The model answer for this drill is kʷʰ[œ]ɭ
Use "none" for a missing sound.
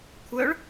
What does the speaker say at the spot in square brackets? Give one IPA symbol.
œ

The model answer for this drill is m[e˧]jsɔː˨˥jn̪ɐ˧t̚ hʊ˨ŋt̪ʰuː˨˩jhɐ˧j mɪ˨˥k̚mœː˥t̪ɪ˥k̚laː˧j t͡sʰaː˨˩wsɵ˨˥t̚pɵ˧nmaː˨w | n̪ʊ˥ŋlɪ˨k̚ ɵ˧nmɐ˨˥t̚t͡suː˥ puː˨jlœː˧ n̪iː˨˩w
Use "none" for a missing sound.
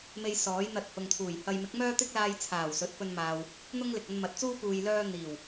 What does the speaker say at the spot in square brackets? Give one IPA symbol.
e˧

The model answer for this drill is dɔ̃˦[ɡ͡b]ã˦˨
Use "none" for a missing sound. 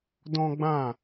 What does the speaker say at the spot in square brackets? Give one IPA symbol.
ɡ͡b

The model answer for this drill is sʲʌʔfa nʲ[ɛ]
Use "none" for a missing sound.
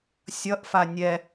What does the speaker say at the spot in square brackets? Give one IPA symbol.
ɛ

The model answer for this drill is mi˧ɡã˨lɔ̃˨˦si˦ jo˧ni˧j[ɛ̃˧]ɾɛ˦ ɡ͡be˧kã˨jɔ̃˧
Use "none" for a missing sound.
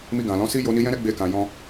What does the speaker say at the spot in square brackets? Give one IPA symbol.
ɛ̃˦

